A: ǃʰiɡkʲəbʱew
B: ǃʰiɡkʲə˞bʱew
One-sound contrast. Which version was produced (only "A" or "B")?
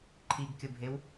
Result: A